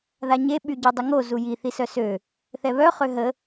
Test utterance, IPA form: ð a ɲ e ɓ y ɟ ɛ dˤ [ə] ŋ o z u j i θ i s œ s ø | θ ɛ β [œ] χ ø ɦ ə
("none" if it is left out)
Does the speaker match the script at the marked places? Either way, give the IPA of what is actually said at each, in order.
ə, œ

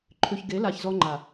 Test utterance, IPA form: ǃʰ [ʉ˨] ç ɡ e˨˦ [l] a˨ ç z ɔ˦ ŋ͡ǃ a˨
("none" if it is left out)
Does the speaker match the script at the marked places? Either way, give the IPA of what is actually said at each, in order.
ʉ˨, l

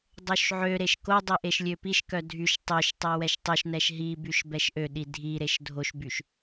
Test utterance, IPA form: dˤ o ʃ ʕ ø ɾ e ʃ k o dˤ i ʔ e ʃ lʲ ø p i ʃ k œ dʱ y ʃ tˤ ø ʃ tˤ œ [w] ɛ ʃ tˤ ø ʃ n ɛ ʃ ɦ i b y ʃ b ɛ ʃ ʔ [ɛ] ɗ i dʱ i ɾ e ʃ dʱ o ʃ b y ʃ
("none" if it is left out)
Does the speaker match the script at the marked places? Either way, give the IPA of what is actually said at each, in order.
w, ø

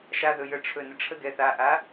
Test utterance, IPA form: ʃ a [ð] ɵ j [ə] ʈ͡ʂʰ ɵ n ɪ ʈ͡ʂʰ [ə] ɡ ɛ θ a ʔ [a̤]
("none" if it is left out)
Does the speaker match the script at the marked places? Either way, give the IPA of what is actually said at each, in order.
ð, ə, ə, a

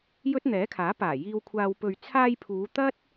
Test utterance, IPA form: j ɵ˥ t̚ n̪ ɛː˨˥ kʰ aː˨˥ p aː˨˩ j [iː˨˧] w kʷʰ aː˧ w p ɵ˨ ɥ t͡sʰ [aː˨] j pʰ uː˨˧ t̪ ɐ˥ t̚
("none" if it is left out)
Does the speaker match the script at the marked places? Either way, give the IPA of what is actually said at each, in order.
iː˧, aː˧

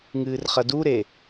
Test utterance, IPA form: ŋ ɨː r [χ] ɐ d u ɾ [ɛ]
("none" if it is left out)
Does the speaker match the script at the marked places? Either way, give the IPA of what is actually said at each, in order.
χ, e

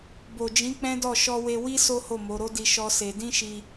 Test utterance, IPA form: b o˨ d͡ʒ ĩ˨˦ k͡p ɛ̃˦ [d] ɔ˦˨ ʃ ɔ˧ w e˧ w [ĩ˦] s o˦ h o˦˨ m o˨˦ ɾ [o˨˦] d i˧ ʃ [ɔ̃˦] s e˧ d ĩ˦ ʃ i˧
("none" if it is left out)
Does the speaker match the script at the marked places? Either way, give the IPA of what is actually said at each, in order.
d, i˦, o˦, ɔ˦

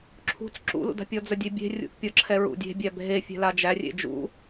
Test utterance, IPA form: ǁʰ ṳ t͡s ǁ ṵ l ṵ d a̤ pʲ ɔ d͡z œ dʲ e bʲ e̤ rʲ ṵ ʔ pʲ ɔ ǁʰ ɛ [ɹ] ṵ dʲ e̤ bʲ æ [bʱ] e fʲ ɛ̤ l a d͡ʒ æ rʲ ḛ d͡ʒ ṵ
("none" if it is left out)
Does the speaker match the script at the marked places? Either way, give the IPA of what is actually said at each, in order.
ɹ, bʱ

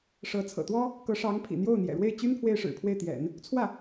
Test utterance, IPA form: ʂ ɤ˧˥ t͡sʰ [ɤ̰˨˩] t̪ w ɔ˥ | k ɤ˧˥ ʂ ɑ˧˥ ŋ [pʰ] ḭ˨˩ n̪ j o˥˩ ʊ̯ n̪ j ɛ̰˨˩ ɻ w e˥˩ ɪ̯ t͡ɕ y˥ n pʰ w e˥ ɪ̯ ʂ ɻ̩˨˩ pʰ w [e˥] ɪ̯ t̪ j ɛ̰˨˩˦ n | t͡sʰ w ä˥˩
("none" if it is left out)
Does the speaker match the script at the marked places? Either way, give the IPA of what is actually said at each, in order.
ɤ̰˨˩, pʰ, e˥˩

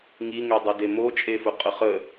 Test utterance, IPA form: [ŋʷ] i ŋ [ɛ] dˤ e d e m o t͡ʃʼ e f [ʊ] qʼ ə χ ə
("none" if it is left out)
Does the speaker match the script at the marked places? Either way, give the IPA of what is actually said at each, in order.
ŋ, ɛ, ʊ

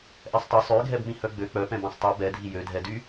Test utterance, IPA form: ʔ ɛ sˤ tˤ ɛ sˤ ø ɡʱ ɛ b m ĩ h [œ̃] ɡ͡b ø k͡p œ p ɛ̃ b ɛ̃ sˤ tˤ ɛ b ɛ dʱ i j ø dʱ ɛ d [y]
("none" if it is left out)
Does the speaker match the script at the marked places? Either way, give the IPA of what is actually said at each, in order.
œ, y

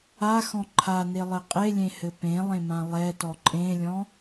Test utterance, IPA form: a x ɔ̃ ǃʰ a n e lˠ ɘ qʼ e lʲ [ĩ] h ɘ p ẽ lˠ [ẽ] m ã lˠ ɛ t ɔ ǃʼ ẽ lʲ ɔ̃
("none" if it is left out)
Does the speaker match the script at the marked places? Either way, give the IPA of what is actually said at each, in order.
ẽ, ẽ

